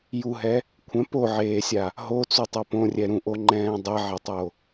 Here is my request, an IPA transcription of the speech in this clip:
j u ɦ ɛ | kʷʰ ɛ̃ p o ʕ eː sʲ a | ɦ o t͡s u tˤ o p õ rʲ ɛ ɾ ũ ʔ o ŋ͡ǃ ɛ̃ː dˤ ɛ ʕ ɛ tˤ o

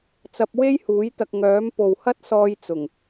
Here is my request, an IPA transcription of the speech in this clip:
t͡s ɐ˧ p̚ w e˥ j h uː˨˥ j t̪ ɐ˨ k̚ ŋ œː˨˥ m p o˨ w h ɐ˥ t̚ s ɔː˧ j t͡s ʊ˨˩ ŋ

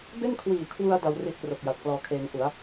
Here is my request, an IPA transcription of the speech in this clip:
b e˥˩ n kʰ w iː˨˩ kʰ w u˧ a̯ d a˧ w r i˦˥ ʔ k r o˨˩ k̚ j a˨˩ t̚ k l ɔː˧ kʰ eː˧ ŋ ʔ u˩˦ a̯

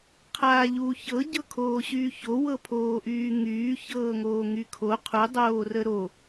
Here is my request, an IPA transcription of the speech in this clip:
qʰ aː ʎ uː ç ɤ ɟ ɤ kʰ oː ɕ yː ç o w ɤ pʰ oː ʔ yː ŋ yː ç ɤː ŋ oː ŋ y kʰ o qʰ u dˤ oː r ə ɾ o

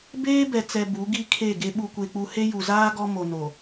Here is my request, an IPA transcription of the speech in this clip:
b eː˦ b ɛ˨ t͡s ɛ˨ b u˨˦ ɡ i˦ kʰ e˦˨ ɡ e˦ ɓ u˦ kʷ e˦ k͡p u˦ h e˦ j u˨ z aː˦ ɡ ɔ˦ m o˨ n o˨

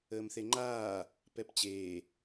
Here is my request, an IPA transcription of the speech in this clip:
əː m θ e ŋ͡ǃ aː | p ɛ p t͡ɕ eː

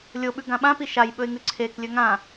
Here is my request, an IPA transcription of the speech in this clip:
lʲ o ɓ ʉ ɡ ã ɓ ã p i ʃ a j ɓ ɵ ɪ̯ ŋ ʉ ǀʰ e k lʲ ɵ ŋ ã

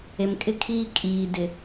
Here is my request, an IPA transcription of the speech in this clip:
e˨ m kʼ ɪ˦ kʰ iː˦ kʼ iː˨ d ɪ˨

